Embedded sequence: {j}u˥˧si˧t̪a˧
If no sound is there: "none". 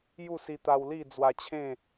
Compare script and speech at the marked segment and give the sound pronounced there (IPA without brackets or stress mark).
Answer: j